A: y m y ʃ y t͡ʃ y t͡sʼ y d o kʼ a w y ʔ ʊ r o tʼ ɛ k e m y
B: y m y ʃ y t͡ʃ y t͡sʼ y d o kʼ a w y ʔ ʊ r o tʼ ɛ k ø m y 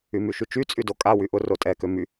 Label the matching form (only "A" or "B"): B